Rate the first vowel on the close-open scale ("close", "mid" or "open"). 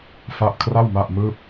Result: open